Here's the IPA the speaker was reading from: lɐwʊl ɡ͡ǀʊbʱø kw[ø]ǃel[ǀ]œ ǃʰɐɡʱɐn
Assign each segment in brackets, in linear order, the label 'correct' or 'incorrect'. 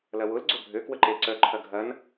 incorrect: ə, correct

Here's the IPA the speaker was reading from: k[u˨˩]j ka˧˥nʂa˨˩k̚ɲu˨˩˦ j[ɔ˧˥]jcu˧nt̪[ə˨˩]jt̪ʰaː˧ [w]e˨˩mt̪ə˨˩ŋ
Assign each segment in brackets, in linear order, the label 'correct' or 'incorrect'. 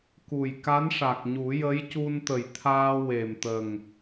correct, incorrect: ə˧˥, correct, correct

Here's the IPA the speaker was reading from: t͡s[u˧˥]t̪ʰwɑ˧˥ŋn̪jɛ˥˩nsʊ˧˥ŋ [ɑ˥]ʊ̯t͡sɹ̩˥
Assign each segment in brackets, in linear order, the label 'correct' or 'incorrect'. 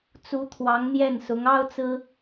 correct, correct

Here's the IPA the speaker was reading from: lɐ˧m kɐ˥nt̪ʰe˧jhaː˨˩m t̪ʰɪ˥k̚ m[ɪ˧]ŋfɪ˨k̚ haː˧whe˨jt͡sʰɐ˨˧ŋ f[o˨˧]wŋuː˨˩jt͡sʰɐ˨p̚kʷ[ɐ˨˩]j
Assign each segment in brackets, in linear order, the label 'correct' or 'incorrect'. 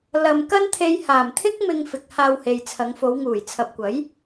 correct, correct, incorrect: ɐ˨˥

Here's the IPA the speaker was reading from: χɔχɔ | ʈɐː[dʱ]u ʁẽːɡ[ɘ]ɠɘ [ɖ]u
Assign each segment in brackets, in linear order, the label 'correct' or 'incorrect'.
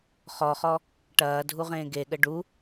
correct, incorrect: e, correct

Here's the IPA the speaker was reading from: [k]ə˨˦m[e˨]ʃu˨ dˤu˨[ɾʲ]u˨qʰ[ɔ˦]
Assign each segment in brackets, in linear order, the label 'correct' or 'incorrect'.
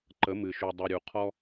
incorrect: ǃ, incorrect: ɨ˨, correct, correct

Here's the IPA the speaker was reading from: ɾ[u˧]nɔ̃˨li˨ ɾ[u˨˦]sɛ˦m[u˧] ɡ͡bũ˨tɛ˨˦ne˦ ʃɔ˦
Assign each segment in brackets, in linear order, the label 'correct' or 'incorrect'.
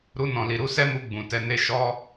correct, correct, correct

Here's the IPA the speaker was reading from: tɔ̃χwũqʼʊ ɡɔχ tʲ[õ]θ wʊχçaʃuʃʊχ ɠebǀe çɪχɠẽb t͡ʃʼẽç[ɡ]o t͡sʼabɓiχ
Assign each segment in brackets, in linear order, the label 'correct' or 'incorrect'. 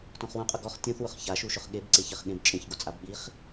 correct, correct

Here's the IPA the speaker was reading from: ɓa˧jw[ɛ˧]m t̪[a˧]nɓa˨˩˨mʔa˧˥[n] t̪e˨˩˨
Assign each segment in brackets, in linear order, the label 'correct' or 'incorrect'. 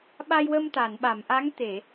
incorrect: ə˧, incorrect: a˨˩˨, incorrect: ŋ

